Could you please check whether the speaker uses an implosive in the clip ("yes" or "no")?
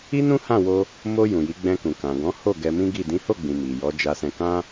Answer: no